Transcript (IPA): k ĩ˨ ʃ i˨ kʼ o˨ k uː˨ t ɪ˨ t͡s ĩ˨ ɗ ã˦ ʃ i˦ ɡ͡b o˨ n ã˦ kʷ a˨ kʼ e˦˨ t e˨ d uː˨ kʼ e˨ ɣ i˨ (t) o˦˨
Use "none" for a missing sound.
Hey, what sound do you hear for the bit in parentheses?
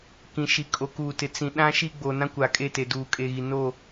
n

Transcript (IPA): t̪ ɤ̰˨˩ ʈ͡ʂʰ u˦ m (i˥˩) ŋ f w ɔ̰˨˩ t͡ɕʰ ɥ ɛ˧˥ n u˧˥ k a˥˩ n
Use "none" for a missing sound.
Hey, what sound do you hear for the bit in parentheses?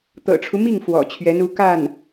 i˥˩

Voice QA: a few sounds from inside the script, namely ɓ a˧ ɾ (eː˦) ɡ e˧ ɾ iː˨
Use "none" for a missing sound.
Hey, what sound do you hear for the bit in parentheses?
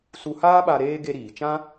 eː˦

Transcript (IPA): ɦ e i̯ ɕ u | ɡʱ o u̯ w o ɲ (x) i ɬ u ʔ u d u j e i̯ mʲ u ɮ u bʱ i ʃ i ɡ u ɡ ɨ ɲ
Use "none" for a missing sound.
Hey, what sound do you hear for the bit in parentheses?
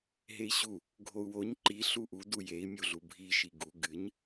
ǃ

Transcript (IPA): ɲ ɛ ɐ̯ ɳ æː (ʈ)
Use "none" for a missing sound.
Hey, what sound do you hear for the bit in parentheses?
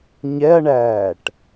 ʈ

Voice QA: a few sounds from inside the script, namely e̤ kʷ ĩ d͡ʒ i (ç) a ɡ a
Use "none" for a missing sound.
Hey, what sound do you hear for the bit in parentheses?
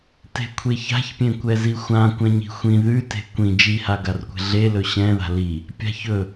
h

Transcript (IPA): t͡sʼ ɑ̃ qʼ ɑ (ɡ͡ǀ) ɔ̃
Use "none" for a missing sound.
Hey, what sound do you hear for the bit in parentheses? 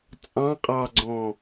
ɡ͡ǀ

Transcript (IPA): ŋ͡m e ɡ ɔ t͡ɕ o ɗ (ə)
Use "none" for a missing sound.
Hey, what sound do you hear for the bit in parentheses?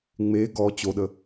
ə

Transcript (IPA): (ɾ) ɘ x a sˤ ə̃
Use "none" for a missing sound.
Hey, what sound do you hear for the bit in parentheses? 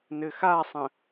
n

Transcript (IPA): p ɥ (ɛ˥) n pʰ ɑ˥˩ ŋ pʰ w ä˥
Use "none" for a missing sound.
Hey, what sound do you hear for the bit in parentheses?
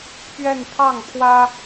ɛ˥˧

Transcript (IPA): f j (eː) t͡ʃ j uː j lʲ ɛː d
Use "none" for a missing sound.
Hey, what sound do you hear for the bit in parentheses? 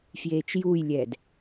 eː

